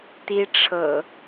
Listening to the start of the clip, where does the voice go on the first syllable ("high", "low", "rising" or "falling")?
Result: high